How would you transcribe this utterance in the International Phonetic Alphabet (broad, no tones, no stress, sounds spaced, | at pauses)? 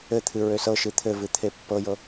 ɘ t̪ʰ ɨ ɹ ø s ɤ ʃ ɨ t̪ʰ ɘ v ɨ t̪ʰ e pː ɤ j ɤ